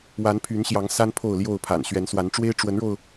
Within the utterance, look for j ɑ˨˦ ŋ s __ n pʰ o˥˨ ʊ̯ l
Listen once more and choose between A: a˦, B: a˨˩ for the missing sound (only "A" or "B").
A